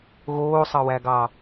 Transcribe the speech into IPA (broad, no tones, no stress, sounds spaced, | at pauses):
ɣ oː sˤ ɑ w æ ɡ ɑ